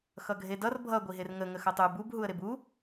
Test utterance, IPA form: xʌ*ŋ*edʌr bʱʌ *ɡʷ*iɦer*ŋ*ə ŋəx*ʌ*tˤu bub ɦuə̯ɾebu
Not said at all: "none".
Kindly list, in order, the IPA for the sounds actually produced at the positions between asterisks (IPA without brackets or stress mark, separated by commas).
ɡʱ, ɡʷ, ŋ, ʌ